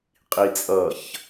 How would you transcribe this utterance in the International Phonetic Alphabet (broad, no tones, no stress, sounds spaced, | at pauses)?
qʼ i t͡sʼ ʌ ç